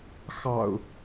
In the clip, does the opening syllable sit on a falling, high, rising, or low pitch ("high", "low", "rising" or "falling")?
low